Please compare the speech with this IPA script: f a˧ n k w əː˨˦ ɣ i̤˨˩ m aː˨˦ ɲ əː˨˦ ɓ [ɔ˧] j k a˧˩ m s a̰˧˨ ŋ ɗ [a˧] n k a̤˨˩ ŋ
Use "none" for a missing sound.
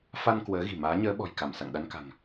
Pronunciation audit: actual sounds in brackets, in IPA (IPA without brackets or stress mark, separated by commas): ɔ̤˨˩, a˧